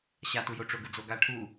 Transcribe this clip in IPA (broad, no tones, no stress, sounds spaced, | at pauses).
ɕ a t u j o ʈ͡ʂ o ɡ ɯ d͡z o ɡ a ʈʰ u